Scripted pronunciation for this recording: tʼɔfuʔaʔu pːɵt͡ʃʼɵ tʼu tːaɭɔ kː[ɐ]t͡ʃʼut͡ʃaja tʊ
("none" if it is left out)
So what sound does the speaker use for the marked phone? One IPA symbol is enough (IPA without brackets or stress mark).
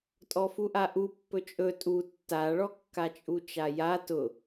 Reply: a